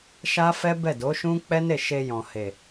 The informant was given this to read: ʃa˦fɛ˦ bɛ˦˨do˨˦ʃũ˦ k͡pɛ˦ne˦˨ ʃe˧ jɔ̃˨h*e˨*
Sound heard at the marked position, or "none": e˨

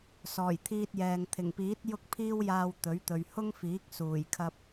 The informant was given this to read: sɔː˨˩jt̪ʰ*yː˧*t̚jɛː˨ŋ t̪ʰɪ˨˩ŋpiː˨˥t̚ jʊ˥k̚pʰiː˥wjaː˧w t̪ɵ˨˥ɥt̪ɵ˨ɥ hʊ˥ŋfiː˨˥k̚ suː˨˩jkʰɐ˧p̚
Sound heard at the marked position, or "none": iː˧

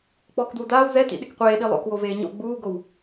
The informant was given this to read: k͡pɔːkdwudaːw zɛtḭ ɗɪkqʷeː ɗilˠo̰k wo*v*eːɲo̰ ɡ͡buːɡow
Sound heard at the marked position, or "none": v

